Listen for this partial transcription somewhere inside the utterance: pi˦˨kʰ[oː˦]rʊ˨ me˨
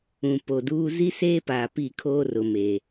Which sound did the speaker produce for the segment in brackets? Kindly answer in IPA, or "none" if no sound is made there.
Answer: oː˦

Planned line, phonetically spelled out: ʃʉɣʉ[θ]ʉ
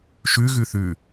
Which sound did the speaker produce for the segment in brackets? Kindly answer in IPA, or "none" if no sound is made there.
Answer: θ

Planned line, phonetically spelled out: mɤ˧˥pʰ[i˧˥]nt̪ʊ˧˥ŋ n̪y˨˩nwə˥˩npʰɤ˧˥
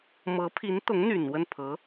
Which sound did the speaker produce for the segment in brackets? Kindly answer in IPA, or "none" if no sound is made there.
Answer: i˧˥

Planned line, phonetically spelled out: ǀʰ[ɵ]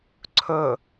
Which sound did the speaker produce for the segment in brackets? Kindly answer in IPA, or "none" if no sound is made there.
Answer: ɵ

